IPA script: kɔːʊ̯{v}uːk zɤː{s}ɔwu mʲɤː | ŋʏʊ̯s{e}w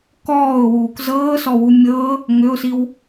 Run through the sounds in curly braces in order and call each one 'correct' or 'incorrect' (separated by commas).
incorrect, correct, incorrect